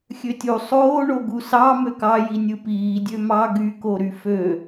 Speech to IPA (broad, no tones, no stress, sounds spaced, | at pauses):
xʲ ø tʲ u sˤ oː ɳ o ɡ u s ɑ m ø k ɑ j i nʲ ɯ p iː dʲ ø m ɑ ɡ y k o ɾ y f ø